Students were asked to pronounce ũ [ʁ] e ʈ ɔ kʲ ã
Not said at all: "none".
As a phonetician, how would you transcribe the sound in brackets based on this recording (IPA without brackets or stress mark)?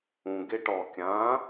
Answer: ɡ